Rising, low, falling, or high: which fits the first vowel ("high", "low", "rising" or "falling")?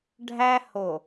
high